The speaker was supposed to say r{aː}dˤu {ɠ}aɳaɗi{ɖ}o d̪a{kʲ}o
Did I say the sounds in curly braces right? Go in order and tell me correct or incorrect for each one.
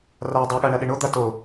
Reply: correct, correct, incorrect: ɳ, incorrect: t

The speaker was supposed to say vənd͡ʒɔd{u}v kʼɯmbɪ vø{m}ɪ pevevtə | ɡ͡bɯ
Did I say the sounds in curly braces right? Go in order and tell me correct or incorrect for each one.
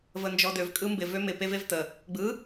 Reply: incorrect: ø, correct

